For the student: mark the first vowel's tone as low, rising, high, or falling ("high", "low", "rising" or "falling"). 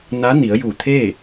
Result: rising